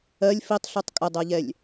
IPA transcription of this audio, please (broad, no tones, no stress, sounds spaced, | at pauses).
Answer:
ɜ lʲ f i tˤ ɬ u tˤ kʼ ə dˤ ɜ ʎ ɛ lʲ